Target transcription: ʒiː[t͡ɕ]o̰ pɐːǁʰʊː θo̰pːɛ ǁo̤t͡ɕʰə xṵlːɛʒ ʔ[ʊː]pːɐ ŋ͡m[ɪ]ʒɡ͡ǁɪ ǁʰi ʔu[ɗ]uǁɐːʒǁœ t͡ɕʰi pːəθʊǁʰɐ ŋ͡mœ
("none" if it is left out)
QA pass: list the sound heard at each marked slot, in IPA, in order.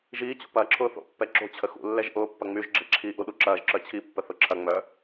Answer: t͡ɕ, ʊː, y, ɗ

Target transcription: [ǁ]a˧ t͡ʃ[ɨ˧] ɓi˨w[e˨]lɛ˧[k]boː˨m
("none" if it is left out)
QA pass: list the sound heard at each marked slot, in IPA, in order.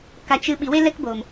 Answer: k, ɨ˧, e˧, k

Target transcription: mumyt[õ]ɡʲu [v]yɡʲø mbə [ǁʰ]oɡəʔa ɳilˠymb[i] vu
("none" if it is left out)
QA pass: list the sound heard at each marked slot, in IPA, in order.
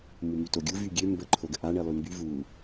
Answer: o, v, ǃʰ, y

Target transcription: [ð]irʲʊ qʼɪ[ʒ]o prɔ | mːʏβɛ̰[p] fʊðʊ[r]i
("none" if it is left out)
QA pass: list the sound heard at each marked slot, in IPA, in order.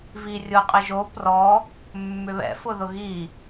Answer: v, ʒ, none, ɣ

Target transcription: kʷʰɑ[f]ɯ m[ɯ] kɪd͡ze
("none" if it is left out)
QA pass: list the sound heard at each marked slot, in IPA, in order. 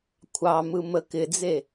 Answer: m, ə

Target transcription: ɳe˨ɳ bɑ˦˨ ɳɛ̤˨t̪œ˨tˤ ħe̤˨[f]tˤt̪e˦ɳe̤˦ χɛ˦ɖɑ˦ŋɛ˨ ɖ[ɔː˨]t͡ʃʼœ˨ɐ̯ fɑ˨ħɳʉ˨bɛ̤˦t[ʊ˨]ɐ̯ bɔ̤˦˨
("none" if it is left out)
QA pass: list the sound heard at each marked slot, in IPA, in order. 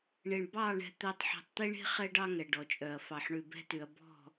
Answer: none, ɔ˨, ʉ˨

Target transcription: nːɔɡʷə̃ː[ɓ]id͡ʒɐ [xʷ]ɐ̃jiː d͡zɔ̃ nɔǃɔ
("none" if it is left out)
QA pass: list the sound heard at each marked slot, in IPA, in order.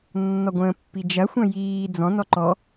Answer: pː, xʷ

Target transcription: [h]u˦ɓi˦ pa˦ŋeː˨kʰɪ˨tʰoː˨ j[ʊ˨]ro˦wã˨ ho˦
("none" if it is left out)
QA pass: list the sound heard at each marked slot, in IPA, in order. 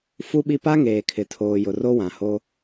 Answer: f, ʊ˨

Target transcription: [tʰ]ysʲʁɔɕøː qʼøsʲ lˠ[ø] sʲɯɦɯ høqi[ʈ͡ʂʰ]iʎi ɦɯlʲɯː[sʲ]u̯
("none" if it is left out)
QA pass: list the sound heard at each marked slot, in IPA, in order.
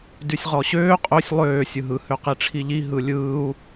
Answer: d, øː, ʈ͡ʂʰ, none

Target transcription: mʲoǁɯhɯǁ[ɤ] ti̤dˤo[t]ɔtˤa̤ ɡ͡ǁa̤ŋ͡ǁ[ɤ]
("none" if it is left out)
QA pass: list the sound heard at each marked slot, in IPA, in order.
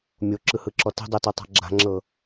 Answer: ɔ, t, ɤ

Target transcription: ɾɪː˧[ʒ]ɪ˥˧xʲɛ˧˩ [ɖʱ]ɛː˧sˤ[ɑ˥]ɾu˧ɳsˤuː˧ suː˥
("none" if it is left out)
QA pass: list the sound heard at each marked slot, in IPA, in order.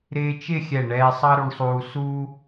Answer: t͡ʃ, ɳ, ɑ˥

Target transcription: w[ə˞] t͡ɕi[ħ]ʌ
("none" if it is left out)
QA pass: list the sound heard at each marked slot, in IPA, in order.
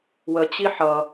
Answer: ə, ħ

